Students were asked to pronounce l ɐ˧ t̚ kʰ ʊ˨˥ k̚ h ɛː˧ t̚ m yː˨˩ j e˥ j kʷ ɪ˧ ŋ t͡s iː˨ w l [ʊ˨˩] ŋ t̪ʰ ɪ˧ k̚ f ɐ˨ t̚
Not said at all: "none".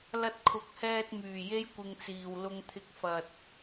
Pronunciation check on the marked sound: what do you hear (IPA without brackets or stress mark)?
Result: ʊ˧